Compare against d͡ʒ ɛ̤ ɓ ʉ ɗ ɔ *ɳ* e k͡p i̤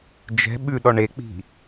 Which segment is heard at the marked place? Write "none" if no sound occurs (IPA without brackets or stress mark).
ɳ